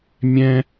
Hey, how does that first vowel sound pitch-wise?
high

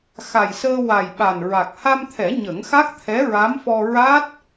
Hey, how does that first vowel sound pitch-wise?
low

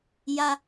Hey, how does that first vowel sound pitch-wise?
high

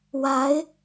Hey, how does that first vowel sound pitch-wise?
rising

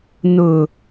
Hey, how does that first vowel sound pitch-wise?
low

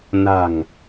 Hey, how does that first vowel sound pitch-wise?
low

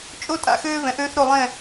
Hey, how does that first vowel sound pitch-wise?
high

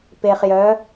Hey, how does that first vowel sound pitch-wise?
low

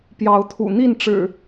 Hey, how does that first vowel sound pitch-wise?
rising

